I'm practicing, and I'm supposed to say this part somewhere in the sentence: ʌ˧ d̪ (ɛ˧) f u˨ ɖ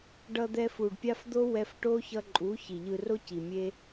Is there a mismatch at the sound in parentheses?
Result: no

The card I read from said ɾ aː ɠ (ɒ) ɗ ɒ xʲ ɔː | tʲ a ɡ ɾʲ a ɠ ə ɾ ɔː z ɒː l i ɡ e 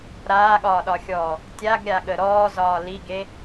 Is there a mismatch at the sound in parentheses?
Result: yes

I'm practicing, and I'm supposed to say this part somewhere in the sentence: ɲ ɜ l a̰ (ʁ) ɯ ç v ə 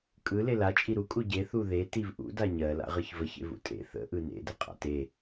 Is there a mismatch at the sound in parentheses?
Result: no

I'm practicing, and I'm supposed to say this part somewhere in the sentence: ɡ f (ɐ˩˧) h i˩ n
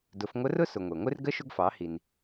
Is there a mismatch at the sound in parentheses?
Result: yes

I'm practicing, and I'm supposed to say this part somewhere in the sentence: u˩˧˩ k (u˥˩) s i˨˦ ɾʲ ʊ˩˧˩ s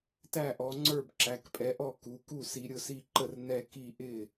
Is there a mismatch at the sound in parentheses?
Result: no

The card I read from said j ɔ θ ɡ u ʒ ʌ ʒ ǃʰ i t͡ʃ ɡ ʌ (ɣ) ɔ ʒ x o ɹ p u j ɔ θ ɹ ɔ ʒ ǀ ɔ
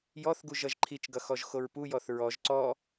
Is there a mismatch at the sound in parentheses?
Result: yes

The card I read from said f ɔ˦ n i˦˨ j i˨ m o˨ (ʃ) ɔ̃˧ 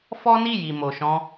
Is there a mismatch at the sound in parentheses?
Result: no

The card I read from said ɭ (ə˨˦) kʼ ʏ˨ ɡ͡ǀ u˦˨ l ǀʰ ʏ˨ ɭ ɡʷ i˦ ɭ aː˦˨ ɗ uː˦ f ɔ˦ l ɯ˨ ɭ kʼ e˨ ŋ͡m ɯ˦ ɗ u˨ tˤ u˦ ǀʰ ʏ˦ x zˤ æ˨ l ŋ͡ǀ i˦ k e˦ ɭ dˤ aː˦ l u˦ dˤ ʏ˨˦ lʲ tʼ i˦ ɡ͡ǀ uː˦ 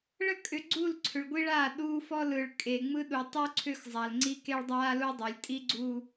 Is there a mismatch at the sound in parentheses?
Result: yes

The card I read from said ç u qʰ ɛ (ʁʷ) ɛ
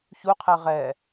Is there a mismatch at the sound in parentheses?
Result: yes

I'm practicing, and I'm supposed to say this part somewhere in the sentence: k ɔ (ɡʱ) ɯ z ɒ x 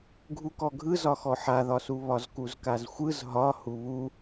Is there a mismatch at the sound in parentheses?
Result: no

